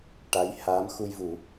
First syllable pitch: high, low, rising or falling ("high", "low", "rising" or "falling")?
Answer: rising